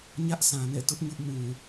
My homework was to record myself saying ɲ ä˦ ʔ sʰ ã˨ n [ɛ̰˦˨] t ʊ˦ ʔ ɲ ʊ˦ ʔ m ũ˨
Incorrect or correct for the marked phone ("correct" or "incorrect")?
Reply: correct